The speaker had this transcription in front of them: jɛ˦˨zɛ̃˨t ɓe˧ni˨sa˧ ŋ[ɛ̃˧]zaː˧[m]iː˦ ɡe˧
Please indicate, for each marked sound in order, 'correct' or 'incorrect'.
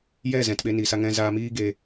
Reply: correct, correct

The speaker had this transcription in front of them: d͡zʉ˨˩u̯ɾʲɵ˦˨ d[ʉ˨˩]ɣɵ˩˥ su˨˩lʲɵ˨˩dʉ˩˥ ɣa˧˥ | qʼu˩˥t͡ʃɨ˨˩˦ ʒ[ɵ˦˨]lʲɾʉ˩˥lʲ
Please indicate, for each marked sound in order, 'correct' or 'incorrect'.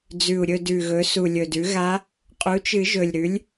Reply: correct, incorrect: ɵ˨˩

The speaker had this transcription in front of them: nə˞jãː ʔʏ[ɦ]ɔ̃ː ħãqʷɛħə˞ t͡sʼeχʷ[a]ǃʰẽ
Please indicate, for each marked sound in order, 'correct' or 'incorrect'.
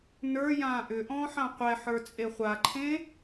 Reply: incorrect: ʔ, correct

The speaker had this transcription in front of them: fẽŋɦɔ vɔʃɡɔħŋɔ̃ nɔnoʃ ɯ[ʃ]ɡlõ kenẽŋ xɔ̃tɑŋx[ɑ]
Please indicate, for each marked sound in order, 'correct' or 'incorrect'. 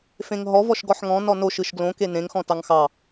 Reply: correct, correct

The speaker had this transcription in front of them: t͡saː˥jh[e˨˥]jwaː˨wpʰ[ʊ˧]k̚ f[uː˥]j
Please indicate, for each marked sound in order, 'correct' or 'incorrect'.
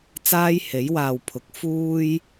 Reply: correct, incorrect: ʊ˨˥, correct

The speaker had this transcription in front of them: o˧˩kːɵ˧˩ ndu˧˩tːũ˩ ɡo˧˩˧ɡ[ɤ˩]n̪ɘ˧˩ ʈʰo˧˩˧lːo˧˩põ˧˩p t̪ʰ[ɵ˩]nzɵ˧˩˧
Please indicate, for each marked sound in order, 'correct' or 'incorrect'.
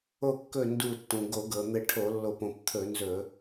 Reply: correct, incorrect: ɵ˧˩˧

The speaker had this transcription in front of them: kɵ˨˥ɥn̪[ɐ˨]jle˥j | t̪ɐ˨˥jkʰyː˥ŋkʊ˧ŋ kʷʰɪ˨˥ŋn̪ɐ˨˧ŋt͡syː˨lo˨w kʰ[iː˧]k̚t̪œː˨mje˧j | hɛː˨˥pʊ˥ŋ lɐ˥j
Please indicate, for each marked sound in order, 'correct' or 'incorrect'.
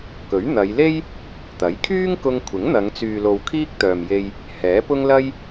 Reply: incorrect: ɐ˨˧, incorrect: iː˥

